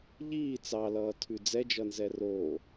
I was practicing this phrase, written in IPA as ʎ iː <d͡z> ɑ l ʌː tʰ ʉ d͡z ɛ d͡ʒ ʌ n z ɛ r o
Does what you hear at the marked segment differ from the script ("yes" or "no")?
yes